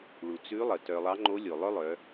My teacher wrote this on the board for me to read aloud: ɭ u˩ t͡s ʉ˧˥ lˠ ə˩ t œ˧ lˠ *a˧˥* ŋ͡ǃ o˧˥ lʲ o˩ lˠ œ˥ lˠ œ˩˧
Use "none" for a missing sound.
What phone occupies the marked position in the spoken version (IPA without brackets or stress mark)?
ɑ˧˥